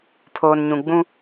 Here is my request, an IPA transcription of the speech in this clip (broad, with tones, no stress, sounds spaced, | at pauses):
pʰ oː˨ n ɲ ũ˨ ɡ͡b ũ˦